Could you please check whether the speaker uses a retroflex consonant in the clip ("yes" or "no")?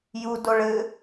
yes